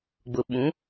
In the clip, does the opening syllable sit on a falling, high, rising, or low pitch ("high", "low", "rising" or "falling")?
low